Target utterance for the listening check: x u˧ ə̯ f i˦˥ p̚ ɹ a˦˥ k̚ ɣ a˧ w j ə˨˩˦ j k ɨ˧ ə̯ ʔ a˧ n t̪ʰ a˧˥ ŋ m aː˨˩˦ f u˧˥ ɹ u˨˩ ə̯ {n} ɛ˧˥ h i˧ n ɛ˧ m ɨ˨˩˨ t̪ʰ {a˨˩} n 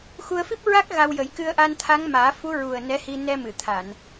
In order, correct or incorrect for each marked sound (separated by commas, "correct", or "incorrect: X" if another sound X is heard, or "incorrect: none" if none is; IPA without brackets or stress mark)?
correct, incorrect: a˨˩˨